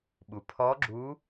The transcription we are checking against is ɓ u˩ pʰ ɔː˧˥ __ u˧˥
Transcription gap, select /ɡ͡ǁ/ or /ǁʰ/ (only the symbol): ɡ͡ǁ